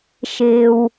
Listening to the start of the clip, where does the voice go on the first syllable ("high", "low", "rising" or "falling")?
low